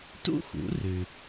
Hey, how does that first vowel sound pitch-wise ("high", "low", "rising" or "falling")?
high